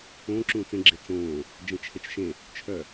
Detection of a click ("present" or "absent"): present